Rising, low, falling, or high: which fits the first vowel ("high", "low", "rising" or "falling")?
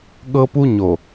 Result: high